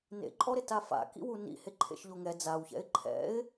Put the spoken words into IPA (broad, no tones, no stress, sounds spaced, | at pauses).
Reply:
n ḛ ǃʼ ɔ ɾ ɪ t a f a̰ k ḭ w u n ḭ h e ǃʰ ḛ ʃ ʎ o ŋ ɛ d͡z a w ç ɛ̰ ɪ̯ ǃʰ ɛ̰ ɪ̯